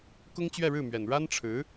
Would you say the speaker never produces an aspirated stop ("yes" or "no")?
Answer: no